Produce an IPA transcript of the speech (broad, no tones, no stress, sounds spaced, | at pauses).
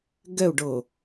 ɡ ɛ u̯ ɖ ɤ